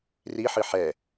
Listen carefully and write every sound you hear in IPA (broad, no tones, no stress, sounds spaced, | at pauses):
r i ħ ɨ ħ ɛ